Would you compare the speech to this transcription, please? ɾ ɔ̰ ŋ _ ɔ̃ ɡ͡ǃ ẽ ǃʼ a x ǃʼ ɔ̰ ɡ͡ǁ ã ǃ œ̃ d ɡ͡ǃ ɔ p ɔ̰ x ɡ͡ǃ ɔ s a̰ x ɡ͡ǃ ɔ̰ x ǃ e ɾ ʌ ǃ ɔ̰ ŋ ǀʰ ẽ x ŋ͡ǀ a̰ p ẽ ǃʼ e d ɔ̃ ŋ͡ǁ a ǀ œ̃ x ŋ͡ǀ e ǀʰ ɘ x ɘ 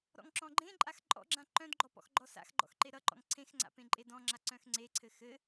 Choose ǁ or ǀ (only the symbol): ǁ